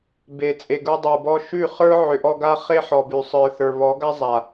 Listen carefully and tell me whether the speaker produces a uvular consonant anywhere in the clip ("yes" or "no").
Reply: yes